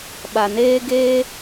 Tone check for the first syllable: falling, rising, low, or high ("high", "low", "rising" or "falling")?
low